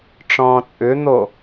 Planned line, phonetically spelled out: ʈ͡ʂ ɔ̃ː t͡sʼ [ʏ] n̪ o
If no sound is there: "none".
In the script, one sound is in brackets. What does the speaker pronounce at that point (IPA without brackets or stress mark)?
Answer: ʏ